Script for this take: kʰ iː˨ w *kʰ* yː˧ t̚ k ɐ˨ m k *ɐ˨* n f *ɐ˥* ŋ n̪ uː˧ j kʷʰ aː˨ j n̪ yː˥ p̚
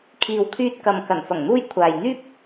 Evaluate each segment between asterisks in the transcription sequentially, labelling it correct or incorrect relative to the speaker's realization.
correct, incorrect: ɐ˨˩, incorrect: ɐ˨˩

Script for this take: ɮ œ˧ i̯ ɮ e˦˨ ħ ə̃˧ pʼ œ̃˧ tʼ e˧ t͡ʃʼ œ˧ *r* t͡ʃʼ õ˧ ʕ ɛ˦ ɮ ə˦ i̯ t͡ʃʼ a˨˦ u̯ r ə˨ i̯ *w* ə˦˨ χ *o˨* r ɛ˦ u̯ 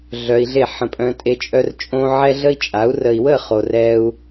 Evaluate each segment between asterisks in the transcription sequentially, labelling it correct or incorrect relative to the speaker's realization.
correct, correct, correct

